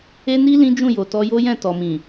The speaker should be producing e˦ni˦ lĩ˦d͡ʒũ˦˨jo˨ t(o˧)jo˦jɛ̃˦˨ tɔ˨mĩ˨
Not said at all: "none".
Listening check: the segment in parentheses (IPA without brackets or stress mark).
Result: ɔ˧